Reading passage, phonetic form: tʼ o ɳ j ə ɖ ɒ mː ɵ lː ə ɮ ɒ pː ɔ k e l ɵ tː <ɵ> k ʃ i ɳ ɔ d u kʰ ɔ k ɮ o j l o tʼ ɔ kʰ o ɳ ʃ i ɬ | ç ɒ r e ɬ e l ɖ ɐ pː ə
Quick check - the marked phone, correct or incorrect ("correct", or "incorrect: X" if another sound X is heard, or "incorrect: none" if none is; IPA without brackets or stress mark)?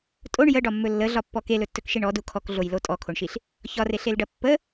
correct